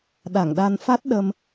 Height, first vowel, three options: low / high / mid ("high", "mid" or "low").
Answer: low